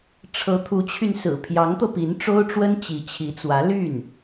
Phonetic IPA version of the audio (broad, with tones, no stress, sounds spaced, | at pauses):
ʈ͡ʂʰ ɤ˧˥ t̪ʰ u˧˥ t͡ɕʰ y˧ n s ɹ̩˨˩ pʰ j ɑ˧˥ ŋ t̪ ɤ˧ p i˧˥ n ʈ͡ʂ o˥ ʊ̯ ʈ͡ʂ w ə˥ n t͡ɕ i˧˥ t͡ɕʰ i˧˥ t͡s w ä˧˥ l y˥˩ n